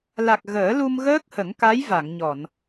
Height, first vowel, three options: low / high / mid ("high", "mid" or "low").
low